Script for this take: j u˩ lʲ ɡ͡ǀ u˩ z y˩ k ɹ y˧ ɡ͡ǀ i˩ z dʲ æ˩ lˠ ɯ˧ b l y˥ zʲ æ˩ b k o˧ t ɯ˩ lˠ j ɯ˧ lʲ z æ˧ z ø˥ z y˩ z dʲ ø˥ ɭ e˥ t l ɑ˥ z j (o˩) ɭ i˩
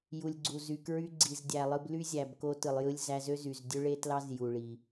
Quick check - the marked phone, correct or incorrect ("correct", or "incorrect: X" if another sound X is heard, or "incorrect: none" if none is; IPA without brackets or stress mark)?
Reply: incorrect: u˩